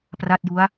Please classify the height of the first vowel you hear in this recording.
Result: low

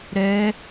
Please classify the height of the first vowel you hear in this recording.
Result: mid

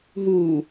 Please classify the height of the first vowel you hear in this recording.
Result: high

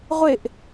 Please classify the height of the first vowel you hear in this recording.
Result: high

